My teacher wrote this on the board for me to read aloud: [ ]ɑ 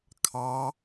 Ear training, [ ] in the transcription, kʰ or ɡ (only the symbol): kʰ